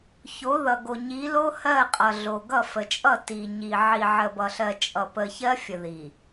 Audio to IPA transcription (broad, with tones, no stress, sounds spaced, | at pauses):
ç o˨˦ ð ʌ˨ ɡ o˨ ɲ i˨˦ l o˦ h ɜ˦˨ qʼ ʌ˨ ɮ o˨ ɡ ʌ˦˨ f ə˨ t͡ʃʼ ʌ˦˨ t i˨ ɲ i˨ ʕ i˨ ʕ ə˨ b ʌ˨ ɬ ɜ˨ t͡ʃʼ ʌ˨ p ə˨ ç ɜ˦ fʲ ə˨ ð i˨